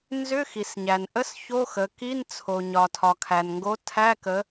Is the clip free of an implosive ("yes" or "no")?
yes